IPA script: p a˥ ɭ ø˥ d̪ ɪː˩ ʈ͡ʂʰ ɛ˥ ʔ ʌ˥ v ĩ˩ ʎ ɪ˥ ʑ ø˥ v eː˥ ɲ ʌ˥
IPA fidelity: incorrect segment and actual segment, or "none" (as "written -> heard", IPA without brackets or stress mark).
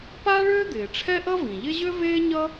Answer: none